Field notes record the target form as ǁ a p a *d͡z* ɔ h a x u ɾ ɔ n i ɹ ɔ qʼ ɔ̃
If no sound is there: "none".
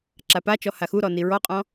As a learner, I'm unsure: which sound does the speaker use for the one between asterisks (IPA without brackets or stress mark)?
t͡ʃ